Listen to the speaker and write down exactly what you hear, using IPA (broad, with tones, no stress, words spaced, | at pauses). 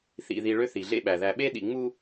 θḭ˨ði˨ ɭø˦θi˨ɮḛ˦ɓæ˨ ðæ˨ɓe˦ ɗḭ˨ŋ͡mu˦